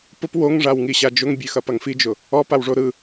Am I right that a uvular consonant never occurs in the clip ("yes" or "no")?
yes